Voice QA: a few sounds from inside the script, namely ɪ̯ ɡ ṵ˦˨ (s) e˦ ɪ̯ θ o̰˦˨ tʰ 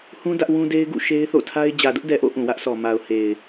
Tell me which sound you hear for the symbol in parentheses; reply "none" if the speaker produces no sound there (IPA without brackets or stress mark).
ʃ